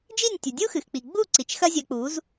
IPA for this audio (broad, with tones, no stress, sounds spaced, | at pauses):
d͡ʒ i˦˨ nʲ tʲ u˨ dʲ u˦ x ɨ˨ x k͡p i˨ ɡ͡b u˦˨ ǀ i˨ t͡ʃ x ɐ˦ zʲ ɐ˧ k͡p u˨˦ z